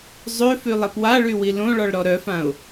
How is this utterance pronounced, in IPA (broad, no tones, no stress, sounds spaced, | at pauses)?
zˤ ø f y lˠ e p w a ɭ y w i l õ ɭ ɔ ɭ ɾ ɔ ɾ œ f ã ʊ̯